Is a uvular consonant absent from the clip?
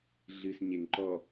yes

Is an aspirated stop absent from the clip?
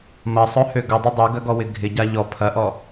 no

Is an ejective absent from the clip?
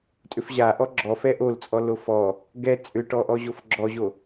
no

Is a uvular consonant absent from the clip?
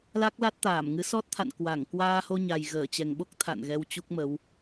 yes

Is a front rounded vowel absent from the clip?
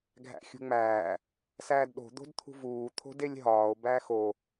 yes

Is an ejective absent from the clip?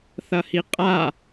no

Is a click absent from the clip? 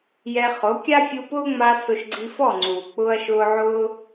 no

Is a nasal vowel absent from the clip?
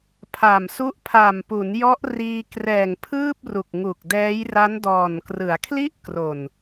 yes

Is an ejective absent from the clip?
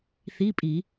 no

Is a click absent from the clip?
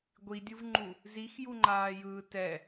no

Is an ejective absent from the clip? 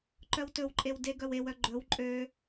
no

